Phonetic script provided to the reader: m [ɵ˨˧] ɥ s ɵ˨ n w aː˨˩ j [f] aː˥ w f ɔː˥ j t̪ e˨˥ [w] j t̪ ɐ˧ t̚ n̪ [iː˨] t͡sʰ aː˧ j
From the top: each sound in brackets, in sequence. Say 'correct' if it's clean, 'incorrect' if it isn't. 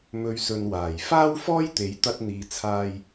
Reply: correct, correct, incorrect: none, correct

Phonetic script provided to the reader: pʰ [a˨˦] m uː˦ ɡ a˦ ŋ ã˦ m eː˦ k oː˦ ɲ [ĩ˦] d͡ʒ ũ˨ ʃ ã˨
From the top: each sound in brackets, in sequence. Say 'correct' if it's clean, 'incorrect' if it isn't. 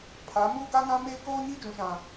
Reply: correct, incorrect: i˦

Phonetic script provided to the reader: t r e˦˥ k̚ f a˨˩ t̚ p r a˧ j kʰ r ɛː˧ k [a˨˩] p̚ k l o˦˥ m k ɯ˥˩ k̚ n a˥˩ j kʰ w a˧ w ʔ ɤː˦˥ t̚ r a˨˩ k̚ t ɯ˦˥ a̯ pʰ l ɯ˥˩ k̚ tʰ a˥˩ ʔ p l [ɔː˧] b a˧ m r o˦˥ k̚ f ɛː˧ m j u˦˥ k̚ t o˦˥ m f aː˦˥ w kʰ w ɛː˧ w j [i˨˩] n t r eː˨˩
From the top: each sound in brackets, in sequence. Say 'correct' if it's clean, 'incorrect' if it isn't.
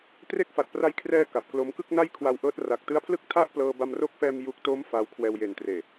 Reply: correct, incorrect: ɤː˧, incorrect: e˨˩

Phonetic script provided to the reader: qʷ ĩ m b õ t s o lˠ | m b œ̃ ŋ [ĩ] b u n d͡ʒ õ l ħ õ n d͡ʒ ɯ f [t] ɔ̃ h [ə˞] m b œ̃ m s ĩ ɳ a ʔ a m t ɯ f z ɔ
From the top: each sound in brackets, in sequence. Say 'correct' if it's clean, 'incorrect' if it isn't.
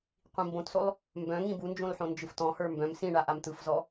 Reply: correct, correct, correct

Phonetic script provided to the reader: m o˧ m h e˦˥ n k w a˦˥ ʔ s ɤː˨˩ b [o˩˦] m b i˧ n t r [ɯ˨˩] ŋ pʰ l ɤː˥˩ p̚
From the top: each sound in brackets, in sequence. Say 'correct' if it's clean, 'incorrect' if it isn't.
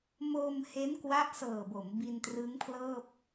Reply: correct, incorrect: ɯ˦˥

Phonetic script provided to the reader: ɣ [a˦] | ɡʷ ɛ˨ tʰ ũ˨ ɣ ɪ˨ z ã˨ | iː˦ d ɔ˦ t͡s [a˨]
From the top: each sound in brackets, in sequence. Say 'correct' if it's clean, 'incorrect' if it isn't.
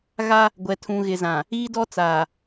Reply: correct, incorrect: aː˨

